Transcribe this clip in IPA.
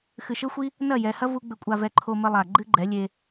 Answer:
x ɨ˨ ʃ ɘ˦ xʷ i˦ | n ɐ˦˨ j ɛ˨ h ɐ˦ v u˧ ɡ͡b ɘ˨ kʷʼ a˨ v ɛ˨ ǃʰ o˧ m ɘ˧ lˠ a˨ ɡ͡ǃ ɨ˦ ɡ͡ǃ ɛ˨˦ lʲ e˧

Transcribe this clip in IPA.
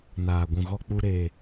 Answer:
n aː˨ ɡʷ ũ˨ ɣ ɔ˧ k͡p u˧ ɾ e˨

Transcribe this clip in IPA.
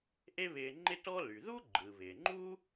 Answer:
ʔ e˥ β ɪː˧ ŋ͡ǃ ɪ˥ t ɔ˥ l y˩ ð u˥ ɡ͡ǃ ɯ˩ β ɪː˩ ŋ͡ǃ uː˥

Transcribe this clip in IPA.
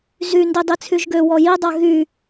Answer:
z y n d i dˤ i t͡sʰ y ʒ ɡ ø w ɔ j i dˤ a ɣ y

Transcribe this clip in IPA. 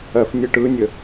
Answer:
ɜ f nʲ ɯ ʈ ɯ nʲ ə

